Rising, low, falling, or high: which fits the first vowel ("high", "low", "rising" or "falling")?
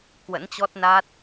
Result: rising